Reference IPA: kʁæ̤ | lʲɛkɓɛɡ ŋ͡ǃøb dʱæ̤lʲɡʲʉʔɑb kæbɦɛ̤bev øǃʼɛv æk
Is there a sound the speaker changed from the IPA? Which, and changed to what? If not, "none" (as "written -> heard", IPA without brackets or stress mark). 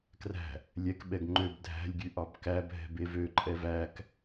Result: ʁ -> r